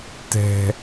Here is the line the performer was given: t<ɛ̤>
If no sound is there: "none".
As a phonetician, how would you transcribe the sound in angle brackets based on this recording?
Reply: ɛ̤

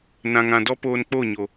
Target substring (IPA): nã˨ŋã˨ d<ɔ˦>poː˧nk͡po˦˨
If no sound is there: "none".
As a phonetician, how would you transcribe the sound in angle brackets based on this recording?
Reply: ɔ˦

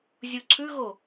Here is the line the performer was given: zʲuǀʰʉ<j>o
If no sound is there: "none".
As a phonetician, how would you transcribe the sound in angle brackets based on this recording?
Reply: ɣ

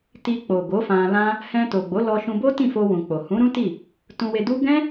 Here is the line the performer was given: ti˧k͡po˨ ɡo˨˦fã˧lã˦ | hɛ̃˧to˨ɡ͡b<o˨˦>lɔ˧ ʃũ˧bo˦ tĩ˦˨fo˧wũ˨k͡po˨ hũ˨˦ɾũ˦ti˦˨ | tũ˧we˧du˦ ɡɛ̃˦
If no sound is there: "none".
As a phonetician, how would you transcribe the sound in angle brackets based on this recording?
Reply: o˨˦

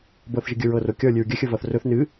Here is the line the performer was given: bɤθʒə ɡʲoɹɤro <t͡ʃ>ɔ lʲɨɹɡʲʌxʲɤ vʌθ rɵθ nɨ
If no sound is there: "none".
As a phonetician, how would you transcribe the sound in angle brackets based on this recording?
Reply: kʲ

